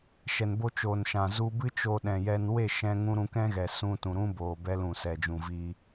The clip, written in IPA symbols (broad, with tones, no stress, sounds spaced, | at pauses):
ʃ ɛ˨ n b o˦ t͡ʃ oː˨ n ʃ ã˨ z u˧ b ɨ˦ t͡ʃ o˧ ɗ ɛ̃˨ j ɛ˧ n w e˦˨ ʃ ɛ̃˧ ŋ ũ˧ ɾ ũ˧ k ɛ̃˦ ɣ ɛ˨ s ũ˧ t ũ˨ ɾ ũ˦ b oː˨ b ɛ˧ l ũ˨ s ɛ˨ d͡ʒ ũ˨ v iː˧